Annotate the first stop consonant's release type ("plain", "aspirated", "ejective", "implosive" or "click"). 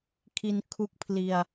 aspirated